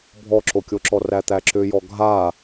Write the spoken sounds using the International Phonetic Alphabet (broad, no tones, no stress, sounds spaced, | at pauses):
bʱ ɔ ǁ o kʲ o ǁ ɔ r æ t̪ æ ǁ ʏ j ɔ ɡʱ a